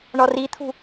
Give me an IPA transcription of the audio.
ɳ ɔ r i t̪ʰ ṳ

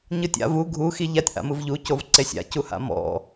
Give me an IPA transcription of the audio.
ɲ ɯ tʲ a̰ v u ɡʱ u x i ʎ a tʲ ʔ a̰ m ɯ v ʎ u c o v ǀ e sʲ a̰ c u h a̰ m ɔ̰

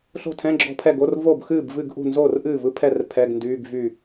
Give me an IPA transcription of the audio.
ɬ o̤˥˩ tʰ ɛ̃˧˥˧ ɡ͡ǁ ɔ̤˥˩ pʰ ɛ˥˩ ɡ o˧˥˧ r v o˥˩ b x ɨː˥˩ b v ɨ˥˩ ɡ ʔ ṳ˥˩ n z o˥˩ r ʔ ɨː˥˩ v ɯ˧˥˧ pʰ ɛ˥˩ r pʰ ɛ˧˥˧ ɡ n d yː˧˥˧ ɡ v y˥˩

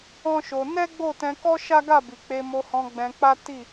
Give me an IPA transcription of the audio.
ɔ̃˦ ʃ o˧ n ɛ˦ ɡ͡b o˦˨ t ɛ̃˧ k ɔ˦ ʃ a˦ ɡ a˦˨ b i˨ k͡p e˧ m o˧ h ɔ̃˧ ɡ͡b ɛ̃˧ k͡p a˦ t i˦˨

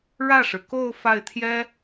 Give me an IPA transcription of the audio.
ɻ ä˥˩ ʂ ɻ̩˩ k o˥˧ ʊ̯ f a˥˩ ɪ̯ t̪ʰ j ɛ˥

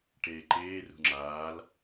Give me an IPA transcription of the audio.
ʈ eː ǃ eː r ṳ ŋ͡ǁ aː l

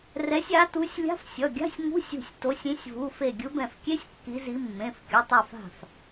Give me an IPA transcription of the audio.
r ɛ˨˦ sʲ a˨˦ t u˨˦ sʲ lʲ a̤˧˥˧ f sʲ ʌ˩˧˩ ɡʲ a̤˧˥˧ sʲ ŋ ṳ˧˥˧ sʲ ṳ˧˩ sʲ t o˨˦ sʲ ĩ˨˦ sʲ v u˩˧˩ f e˧˩ ɡʲ ɯ˨˦ b ɛ̃˧˩ f kʲ e˧˥˧ sʲ kː i˨˦ z i˨˦ mː ẽ˩˧˩ f kʲ ʌ˩˧˩ tˤ a˧˩ f a̤˧˩ f

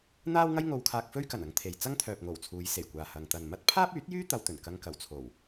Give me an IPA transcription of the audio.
n̪ aː˥ w ŋ ɐ˥ j ŋ o˧ w kʰ aː˧ k̚ f ɵ˥ ɥ k ɐ˨˩ n ɐ˧ ŋ t̪ʰ e˨ j t͡s ɐ˥ ŋ t̪ʰ œː˨ p̚ ŋ o˨˩ w t͡sʰ uː˨˧ j s e˨˩ j kʷ aː˨ h ɐ˨ ŋ t̪ ɐ˨ n m ɐ˥ t̚ pʰ aː˥ p̚ yː˨˥ t̚ j yː˥ t̪ ɐ˧ w t̪ ɵ˨˩ n k ɐ˧ ŋ k ɐ˨˩ w t͡sʰ o˨˩ w

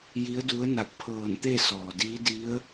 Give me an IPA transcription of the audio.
j i˧˥ ə̯ d u˧˥ ə̯ n a˧˩ k̚ pʰ ɤː˧˩ n t̪ e˥˨ s ɔː˩ d iː˧˥ d i˧˥ ə̯

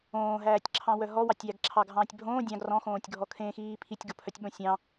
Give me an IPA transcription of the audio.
õː ɦ æː tʲ ǁʰ ɑ̃ w œ ɦ ɔ w ɑ tʲ j æ ɡ ǁʰ ɑ ɡʱ ɑ̃ː tʲ bʱ õː dʲ ɑ̃ ɡ r ɔ̃ x õː tʲ ɡʱ ɔ kʰ ẽ x iː pʰ i tʲ ɡ o pʰ œ tʲ ɓ õ sʲ ɑ̃

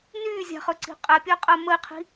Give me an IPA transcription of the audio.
n yː zʲ a̤ χ ɵ ǀ i̤ qʼ ɛ pʲ əː qʼ ɜ m ə i̯ qʰ i̤

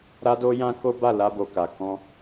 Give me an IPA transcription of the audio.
ɾ a˦ d o˦ j ã˦ k o˦ b a˦˨ l a˧ b o˨ k a˨ k ɔ̃˧

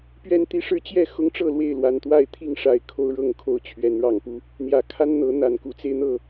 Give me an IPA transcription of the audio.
p ɥ ɛ˦ n t̪ i˦ ʂ ɻ̩˦ t͡ɕ j ɛ˥˨ x ʊ˦ ŋ ʈ͡ʂ ɤ˥˨ l w e˥˨ ɪ̯ l w a˨˩ n t̪ w a˥˨ ɪ̯ t̪ʰ i˥˨ ŋ ʂ a˥˨ ɪ̯ kʰ o˦ ʊ̯ ɻ ɤ˥˨ ŋ kʰ o˥˨ ʊ̯ t͡ɕʰ ɥ ɛ˨˦ n ɻ ɑ˨˩ ŋ p u˦ | n̪ j ä˨˩ kʰ a˦ n n̪ ɤ˨˦ n̪ a˨˩ n k u˨˦ t͡s e˧ ɪ̯ n̪ ɤ˥˨

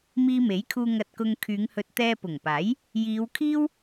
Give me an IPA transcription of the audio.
m iː˧ m e˨˥ j kʰ uː˧ ŋ ɐ˧ t̚ k ʊ˧ ŋ kʰ yː˨˧ ŋ h ɵ˧ t̚ t̪ ɛː˧ p ʊ˨˩ ŋ p aː˨˥ j | j iː˨˧ w kʰ iː˥ w

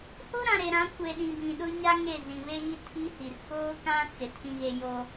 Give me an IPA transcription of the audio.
h o˦ ɾ ã˨ ɾ e˨ ɾ ã˨˦ kʷ e˨ ɗ ĩ˨ b ĩ˨ ɗ ʊ˦ ɲ a˦ ŋ e˦˨ z ĩ˨ β e˦ ɣ i˦ tʰ i˦ h i˨ r k oː˦ k ã˦ t͡s ɪ˨ tʰ ĩ˨ ɣ e˨ j o˦

